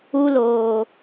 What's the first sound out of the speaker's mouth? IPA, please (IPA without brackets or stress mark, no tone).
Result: u